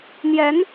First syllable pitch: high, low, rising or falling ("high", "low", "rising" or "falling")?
rising